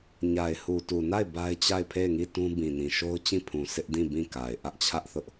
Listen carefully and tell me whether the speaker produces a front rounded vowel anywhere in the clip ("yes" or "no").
no